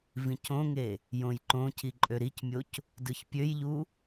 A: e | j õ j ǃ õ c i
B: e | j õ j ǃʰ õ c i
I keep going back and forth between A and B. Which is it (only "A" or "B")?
A